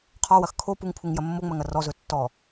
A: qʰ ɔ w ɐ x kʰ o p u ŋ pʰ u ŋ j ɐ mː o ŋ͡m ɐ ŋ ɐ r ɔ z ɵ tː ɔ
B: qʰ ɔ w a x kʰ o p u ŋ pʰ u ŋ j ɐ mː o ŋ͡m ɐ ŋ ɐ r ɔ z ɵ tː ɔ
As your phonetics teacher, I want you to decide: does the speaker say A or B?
A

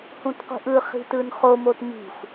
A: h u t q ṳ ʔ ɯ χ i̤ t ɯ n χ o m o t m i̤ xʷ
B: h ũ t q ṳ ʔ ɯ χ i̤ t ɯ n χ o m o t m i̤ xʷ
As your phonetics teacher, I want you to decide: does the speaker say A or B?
B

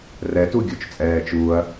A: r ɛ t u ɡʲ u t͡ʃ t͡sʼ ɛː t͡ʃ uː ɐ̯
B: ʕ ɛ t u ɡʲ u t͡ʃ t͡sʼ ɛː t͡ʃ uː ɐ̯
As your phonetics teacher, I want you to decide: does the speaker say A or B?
A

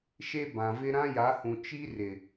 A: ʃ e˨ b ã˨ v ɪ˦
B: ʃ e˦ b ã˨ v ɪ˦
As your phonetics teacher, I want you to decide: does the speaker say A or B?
B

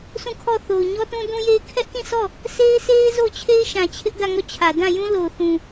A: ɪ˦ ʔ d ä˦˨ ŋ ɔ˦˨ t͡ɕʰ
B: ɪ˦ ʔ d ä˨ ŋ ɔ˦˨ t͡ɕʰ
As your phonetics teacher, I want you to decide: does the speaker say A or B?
A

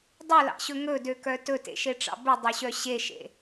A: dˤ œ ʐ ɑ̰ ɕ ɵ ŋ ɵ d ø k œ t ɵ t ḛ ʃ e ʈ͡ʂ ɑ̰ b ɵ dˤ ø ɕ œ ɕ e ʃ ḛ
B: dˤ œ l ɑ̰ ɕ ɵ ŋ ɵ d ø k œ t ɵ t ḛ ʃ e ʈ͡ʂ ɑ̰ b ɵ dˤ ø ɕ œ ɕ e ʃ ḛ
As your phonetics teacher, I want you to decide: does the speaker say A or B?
B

